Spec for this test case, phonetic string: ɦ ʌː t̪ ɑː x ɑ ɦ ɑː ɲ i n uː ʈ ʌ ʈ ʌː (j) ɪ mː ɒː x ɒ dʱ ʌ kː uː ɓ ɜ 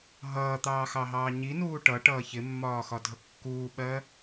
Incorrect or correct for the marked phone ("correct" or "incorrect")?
incorrect